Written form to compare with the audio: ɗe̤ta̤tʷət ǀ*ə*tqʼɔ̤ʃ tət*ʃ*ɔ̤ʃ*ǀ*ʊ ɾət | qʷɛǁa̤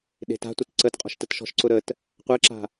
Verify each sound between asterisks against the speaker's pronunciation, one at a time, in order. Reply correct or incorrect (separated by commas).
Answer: correct, correct, correct